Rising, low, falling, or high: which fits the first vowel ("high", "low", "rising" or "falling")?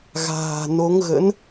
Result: low